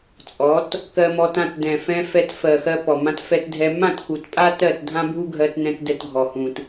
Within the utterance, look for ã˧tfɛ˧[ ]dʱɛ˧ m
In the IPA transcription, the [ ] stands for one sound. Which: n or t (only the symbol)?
t